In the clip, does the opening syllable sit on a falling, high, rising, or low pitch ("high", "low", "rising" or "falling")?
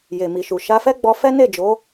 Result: low